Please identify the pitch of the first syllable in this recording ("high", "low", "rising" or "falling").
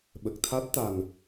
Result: low